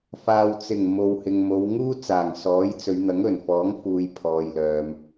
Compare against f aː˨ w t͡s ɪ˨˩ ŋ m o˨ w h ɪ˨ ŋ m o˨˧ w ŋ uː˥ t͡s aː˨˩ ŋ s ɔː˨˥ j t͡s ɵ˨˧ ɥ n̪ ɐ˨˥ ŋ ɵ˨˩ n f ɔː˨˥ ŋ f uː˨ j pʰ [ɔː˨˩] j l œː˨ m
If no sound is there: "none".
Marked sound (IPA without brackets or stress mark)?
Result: ɔː˨